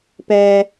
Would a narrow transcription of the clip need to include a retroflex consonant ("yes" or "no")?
no